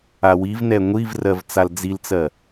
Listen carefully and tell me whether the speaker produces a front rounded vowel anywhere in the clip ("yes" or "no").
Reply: no